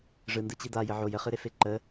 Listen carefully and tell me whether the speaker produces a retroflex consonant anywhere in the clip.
yes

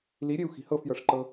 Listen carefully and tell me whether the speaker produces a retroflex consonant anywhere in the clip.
yes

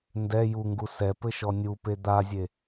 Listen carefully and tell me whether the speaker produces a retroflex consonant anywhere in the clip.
no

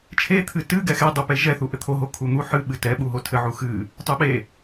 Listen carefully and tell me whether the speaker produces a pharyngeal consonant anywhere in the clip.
yes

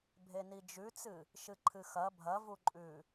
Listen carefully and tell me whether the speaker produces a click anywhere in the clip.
yes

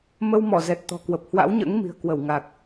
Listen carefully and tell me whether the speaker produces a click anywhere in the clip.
no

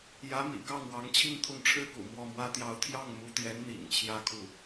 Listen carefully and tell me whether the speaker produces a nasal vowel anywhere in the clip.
no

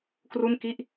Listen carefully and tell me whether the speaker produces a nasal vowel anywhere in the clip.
no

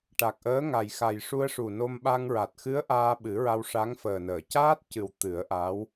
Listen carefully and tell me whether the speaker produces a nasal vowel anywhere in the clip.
no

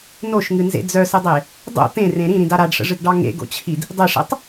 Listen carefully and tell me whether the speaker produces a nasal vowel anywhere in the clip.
yes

